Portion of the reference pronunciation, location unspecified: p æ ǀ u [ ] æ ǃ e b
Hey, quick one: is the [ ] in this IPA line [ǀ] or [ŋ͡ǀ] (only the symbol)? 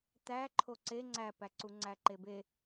ŋ͡ǀ